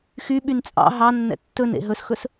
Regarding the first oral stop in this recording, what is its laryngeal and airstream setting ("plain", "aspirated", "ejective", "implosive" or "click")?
implosive